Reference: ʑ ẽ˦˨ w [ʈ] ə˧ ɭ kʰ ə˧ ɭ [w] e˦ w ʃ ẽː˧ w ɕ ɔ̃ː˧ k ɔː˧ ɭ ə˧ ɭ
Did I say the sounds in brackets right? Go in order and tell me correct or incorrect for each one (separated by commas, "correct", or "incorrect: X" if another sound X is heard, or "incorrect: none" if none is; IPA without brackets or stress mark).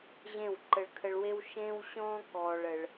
incorrect: ǃ, correct